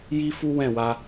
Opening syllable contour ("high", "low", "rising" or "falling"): high